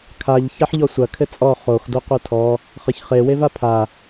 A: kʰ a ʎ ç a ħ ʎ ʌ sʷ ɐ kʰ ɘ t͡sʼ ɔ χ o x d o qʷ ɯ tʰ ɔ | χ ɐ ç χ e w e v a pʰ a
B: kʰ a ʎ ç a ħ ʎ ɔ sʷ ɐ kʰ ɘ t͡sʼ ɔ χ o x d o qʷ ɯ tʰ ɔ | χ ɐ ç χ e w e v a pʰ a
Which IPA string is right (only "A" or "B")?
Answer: B